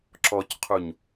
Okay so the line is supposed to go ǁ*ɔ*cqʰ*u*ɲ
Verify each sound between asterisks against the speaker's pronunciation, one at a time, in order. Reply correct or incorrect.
correct, correct

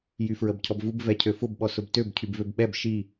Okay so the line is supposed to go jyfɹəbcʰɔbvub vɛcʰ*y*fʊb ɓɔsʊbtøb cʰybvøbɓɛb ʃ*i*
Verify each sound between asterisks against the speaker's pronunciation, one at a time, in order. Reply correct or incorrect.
incorrect: ø, correct

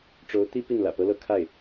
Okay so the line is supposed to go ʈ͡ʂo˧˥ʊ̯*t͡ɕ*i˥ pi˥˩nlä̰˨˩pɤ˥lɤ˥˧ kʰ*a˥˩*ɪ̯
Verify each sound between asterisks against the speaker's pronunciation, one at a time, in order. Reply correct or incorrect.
incorrect: t̪, correct

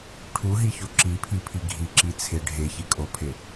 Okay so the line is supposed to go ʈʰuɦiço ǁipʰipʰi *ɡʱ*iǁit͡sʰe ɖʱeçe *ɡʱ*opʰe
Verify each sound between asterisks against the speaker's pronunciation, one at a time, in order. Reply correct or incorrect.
correct, incorrect: kʼ

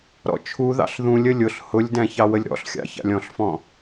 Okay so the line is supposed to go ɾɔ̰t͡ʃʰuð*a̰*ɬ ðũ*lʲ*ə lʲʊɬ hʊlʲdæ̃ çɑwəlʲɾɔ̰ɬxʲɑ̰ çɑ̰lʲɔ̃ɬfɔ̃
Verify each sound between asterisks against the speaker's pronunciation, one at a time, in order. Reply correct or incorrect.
incorrect: ɑ̰, correct

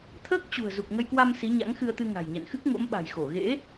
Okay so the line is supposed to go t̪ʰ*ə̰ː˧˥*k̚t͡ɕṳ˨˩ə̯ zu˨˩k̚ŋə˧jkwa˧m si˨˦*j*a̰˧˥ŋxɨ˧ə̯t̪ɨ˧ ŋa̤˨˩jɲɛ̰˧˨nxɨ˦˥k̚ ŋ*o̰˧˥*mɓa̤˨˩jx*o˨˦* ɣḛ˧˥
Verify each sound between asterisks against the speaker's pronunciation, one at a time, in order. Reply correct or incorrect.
incorrect: əː˦˥, incorrect: ɲ, correct, incorrect: o˧˩

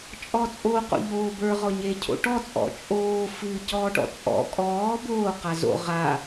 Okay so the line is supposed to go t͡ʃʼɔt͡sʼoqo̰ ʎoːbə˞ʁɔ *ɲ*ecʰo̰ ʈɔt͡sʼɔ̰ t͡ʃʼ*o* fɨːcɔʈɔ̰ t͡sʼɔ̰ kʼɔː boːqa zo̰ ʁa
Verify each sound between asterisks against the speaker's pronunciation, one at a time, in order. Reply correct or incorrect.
correct, incorrect: oː

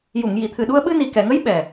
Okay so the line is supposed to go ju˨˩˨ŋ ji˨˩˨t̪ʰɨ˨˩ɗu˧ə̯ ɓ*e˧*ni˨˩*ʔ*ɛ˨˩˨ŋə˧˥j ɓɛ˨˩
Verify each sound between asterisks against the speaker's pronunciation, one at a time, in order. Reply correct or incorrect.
incorrect: ɨ˧, incorrect: k

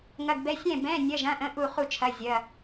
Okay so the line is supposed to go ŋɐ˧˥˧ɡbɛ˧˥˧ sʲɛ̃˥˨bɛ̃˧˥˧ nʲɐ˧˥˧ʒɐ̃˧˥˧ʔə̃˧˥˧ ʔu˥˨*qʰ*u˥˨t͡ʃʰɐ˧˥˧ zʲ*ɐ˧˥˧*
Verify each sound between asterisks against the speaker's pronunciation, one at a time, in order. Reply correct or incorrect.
incorrect: χ, correct

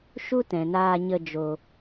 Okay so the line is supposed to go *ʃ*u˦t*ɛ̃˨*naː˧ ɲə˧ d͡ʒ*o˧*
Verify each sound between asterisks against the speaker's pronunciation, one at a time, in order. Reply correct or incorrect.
correct, correct, correct

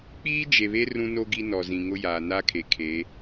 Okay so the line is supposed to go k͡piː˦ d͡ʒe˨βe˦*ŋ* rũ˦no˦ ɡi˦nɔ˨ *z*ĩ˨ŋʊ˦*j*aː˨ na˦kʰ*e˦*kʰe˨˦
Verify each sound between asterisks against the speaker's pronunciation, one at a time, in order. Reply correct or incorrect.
incorrect: none, correct, correct, incorrect: e˨

